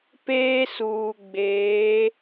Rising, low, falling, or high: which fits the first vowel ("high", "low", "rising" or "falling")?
high